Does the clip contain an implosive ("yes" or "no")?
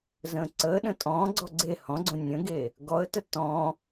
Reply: yes